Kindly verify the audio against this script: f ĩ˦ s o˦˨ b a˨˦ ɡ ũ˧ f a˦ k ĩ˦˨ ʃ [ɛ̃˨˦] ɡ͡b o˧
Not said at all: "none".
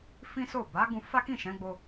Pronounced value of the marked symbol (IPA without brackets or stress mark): ɛ̃˨˦